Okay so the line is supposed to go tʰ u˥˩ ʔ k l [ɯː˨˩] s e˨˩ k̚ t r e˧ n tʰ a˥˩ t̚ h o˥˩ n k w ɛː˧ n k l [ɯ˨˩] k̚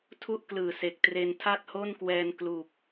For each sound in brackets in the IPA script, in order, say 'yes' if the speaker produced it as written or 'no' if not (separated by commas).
yes, no